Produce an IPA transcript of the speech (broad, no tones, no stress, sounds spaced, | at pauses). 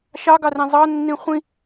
ʃ ɑ ɡ ɑ r ẽ zˤ ɑ nː ĩ χʷ ĩ